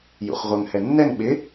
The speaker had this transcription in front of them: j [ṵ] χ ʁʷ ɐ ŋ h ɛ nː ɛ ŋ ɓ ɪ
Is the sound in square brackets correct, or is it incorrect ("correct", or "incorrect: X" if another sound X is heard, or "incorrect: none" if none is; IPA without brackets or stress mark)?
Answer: correct